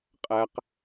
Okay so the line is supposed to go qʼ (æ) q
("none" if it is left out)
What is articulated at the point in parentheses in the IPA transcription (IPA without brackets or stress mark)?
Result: æ